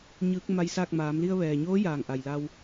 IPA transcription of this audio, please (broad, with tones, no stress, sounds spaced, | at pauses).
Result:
ɲ ɯː˧˥ k̚ m a˧ j s aː˥˨ k̚ m aː˩˧ m l i˧ ə̯ ʋ ɛː˩ ɲ oː˧˥ j aː˩ ŋ ʔ a˩ j l a˧ w